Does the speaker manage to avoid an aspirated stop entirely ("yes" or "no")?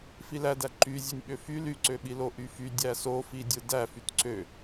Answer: yes